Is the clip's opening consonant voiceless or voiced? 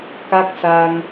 voiceless